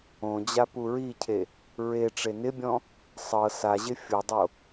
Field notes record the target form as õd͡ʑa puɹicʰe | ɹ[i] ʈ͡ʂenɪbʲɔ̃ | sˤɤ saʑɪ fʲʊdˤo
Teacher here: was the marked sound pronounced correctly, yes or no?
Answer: no